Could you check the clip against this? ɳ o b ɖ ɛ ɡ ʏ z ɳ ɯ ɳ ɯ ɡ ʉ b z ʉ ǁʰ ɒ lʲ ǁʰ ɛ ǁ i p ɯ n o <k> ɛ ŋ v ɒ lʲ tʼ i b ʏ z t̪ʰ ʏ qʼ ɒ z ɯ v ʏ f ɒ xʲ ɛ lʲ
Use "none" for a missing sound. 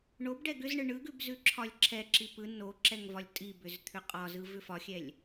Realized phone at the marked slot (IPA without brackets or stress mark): ǁ